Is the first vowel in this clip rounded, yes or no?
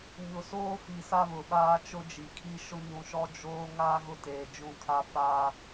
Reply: yes